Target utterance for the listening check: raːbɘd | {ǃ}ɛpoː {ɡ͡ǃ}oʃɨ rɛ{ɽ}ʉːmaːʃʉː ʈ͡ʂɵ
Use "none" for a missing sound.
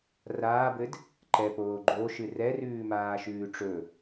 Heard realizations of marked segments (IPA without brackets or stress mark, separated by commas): ǃ, ɡ͡ǃ, r